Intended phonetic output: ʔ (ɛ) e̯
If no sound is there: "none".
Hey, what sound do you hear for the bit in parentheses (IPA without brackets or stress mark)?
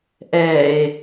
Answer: ɛ